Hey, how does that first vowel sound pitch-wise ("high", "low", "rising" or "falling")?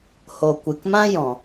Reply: low